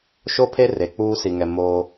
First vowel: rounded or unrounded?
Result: rounded